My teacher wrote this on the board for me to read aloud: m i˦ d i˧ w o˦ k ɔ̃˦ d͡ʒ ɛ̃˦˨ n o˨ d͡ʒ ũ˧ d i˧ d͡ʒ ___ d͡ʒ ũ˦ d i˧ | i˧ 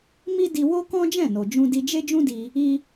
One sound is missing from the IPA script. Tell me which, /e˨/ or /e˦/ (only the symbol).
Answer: e˦